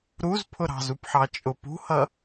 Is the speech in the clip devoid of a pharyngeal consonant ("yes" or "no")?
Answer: no